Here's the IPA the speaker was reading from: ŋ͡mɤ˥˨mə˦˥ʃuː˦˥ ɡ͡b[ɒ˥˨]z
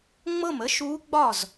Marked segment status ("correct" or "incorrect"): correct